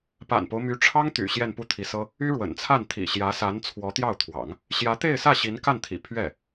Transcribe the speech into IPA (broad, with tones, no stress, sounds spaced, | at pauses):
p a̰˨˩ n p o˦ ʊ̯ m y˧˥ ʈ͡ʂʰ ɑ˥ ŋ t̪ y̰˨˩ ɕ j ɛ˥˧ n p u˥˩ t̪ʰ i˧˥ s ɤ˥ | y˥ ɻ w ə̰˨˩ n t͡sʰ a˥˩ n t̪ʰ ḭ˨˩ ɕ j ä˧˥ s a˧˥ n t͡sʰ w ɔ˧˥ t̪ j ɑ˥˩ ʊ̯ t̪ʰ w ɑ̰˨˩˦ ŋ | ɕ j ä˧˥ t̪ e˥˧ ɪ̯ s ä˥˩ ɕ i˧˥ n k a˥˩ n t̪ʰ ḭ˨˩ pʰ ɥ ɛ˥˩